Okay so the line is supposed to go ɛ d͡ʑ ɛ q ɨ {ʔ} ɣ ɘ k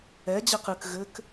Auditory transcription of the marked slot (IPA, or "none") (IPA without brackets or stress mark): k